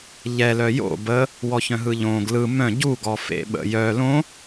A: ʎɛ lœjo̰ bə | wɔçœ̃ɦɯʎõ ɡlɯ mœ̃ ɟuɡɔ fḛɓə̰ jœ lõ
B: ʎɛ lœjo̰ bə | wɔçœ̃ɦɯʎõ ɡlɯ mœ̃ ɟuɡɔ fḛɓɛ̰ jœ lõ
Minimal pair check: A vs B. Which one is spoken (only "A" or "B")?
A